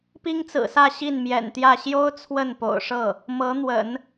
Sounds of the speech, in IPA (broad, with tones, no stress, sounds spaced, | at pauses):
p i˥ ŋ t͡s ɹ̩˨˩ s ä˥˧ ɕ i˥˩ n m j ɛ̰˨˩ n t̪ j ä˥˩ ɕ j o˥ ʊ̯ t͡sʰ w ə˥˩ n p o̰˨˩ ʊ̯ ʂ ɤ˥˩ | m ɤ˧˥ n̪ w ə̰˨˩˦ n